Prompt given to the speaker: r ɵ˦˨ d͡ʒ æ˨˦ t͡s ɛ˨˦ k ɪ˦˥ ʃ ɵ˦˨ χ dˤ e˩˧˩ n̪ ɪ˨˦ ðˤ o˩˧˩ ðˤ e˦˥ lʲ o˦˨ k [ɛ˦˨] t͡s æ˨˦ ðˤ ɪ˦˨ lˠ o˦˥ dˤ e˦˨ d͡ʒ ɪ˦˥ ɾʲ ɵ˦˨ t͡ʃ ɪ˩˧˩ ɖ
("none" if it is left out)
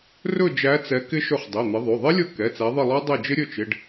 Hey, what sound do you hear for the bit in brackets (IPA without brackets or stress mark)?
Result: ɛ˩˧˩